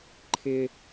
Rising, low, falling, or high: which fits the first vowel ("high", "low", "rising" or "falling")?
high